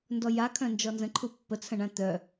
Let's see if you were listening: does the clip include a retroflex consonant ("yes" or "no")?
yes